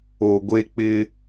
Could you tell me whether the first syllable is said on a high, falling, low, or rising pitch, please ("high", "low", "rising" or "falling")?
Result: low